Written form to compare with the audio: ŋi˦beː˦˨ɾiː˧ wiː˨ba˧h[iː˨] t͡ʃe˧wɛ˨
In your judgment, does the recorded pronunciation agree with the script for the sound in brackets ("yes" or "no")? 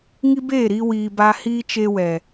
no